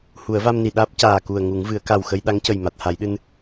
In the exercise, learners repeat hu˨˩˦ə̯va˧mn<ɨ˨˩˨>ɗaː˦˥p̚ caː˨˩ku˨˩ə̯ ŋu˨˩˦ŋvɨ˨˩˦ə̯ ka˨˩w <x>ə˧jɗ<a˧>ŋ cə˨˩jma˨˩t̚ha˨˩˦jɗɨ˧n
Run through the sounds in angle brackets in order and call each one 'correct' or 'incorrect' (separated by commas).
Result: incorrect, correct, incorrect